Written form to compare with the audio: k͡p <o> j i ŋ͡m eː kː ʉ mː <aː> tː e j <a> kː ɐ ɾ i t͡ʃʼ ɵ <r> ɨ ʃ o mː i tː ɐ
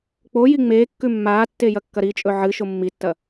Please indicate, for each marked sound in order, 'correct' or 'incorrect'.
correct, correct, incorrect: ɐ, incorrect: ʕ

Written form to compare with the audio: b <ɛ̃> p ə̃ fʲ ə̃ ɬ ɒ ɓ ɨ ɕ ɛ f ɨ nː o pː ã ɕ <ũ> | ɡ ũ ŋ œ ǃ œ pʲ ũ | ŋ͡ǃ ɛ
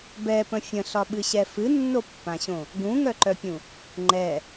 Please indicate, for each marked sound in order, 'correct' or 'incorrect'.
incorrect: ɛ, incorrect: õ

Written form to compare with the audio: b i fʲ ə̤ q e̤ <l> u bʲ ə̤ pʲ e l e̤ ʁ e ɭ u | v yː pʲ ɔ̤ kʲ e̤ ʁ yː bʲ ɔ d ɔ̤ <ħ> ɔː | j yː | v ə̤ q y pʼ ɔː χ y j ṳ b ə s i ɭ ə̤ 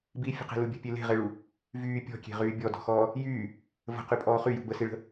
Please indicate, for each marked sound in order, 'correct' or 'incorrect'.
correct, incorrect: x

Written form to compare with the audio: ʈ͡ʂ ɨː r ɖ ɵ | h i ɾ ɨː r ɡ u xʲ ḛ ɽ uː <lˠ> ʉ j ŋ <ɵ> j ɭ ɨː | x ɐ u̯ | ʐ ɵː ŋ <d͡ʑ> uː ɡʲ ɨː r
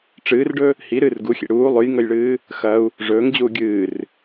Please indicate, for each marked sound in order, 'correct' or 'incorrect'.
correct, correct, correct

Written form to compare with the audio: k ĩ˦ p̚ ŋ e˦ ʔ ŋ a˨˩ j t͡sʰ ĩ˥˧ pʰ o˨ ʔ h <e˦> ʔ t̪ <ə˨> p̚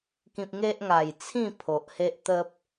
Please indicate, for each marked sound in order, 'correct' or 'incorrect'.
correct, incorrect: ə˦

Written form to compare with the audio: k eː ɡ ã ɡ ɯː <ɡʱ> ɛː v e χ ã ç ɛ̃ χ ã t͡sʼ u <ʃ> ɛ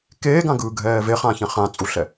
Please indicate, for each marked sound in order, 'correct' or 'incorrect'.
correct, incorrect: ɬ

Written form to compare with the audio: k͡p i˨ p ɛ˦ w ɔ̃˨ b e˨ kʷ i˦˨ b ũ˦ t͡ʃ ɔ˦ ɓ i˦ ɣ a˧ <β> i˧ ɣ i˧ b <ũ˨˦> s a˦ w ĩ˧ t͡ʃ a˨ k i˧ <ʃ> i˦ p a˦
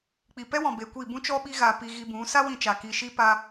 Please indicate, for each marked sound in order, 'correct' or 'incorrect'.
incorrect: p, correct, correct

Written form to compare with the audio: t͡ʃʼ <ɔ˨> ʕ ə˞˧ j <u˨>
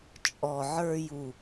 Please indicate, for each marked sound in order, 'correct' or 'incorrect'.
correct, correct

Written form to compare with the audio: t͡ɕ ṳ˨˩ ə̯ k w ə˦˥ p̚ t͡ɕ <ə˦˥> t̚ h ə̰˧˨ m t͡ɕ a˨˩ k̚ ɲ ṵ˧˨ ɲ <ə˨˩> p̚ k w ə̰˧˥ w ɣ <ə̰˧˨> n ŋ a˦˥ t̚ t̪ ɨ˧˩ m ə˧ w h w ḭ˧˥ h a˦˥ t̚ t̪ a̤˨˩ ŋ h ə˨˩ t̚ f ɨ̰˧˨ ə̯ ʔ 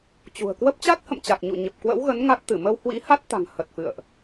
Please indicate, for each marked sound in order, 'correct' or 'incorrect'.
incorrect: a˦˥, correct, incorrect: ə˨˦

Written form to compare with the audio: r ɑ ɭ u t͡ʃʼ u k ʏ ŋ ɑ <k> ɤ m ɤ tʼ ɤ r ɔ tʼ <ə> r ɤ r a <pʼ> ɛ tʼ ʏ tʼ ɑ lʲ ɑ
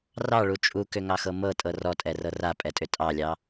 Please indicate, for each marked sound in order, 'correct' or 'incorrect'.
incorrect: x, incorrect: ɛ, correct

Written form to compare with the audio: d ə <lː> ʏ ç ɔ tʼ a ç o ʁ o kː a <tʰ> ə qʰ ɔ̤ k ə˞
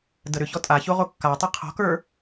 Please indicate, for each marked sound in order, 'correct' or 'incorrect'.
incorrect: ɾ, incorrect: tˤ

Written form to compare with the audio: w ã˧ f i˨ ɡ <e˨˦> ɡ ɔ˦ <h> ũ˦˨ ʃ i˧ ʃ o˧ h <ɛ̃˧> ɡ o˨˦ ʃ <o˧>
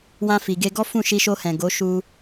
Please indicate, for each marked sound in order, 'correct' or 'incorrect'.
incorrect: e˧, incorrect: f, incorrect: ɛ̃˨, incorrect: u˧

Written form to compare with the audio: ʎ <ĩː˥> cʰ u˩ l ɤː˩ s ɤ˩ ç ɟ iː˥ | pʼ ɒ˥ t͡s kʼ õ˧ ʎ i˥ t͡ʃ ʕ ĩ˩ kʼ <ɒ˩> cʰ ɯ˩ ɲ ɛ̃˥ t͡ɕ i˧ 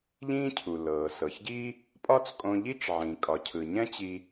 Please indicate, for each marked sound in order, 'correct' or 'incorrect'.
correct, correct

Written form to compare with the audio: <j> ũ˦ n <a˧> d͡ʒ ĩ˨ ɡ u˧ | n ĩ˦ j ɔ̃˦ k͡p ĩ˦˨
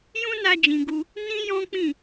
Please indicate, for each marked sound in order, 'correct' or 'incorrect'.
correct, correct

